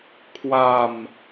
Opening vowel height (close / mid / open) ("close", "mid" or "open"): open